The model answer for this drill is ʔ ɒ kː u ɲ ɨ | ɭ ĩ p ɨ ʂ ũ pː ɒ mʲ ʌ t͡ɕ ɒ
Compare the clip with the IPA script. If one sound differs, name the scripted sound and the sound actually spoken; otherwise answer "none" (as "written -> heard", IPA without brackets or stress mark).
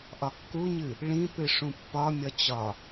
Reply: ʌ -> ɒ